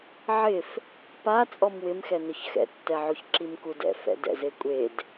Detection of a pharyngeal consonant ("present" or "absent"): present